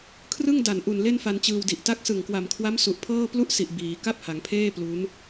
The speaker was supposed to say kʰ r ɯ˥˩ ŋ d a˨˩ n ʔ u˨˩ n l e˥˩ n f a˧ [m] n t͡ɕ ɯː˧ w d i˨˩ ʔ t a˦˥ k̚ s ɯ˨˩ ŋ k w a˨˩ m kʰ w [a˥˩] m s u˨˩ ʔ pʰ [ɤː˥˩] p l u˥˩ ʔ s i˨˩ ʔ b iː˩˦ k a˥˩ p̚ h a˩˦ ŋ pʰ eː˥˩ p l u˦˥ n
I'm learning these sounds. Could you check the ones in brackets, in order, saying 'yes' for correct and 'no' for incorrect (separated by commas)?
no, no, yes